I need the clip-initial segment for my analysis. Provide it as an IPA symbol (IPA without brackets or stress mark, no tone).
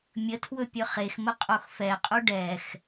mʲ